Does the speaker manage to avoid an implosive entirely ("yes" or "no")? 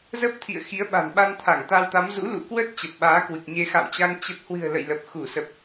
no